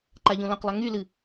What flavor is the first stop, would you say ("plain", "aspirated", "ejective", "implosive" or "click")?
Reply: click